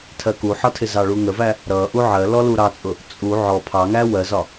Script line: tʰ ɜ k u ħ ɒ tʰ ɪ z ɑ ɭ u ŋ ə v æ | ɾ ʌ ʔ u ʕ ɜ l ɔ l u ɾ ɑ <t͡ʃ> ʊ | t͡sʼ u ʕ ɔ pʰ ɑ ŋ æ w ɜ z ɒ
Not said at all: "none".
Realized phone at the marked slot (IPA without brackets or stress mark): t͡sʼ